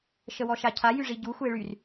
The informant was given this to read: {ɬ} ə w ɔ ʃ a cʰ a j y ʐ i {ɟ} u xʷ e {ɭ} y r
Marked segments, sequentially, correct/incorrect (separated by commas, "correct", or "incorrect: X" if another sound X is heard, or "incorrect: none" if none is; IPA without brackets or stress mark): incorrect: ʃ, correct, correct